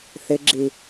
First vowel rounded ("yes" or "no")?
no